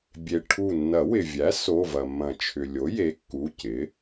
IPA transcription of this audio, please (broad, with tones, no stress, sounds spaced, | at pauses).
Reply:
bʲ e˩ ʈʰ u˧˩ nː ɐ˨˩˦ w ɪ˩ vʲ æ˩˥ s o˩˧˩ v ɐ˩ mː ɐ̃˨˩˦ t͡ʃʰ ʏ˩ lʲ o˩˥ j e˩˥ kː u˩˧˩ c ɪ˩˥